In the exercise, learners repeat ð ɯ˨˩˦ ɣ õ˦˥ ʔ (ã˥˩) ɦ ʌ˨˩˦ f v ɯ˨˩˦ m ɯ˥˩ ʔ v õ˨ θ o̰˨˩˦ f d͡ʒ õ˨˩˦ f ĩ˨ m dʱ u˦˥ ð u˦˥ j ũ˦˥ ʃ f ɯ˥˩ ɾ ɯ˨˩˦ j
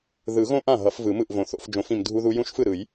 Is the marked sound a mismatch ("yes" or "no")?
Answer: no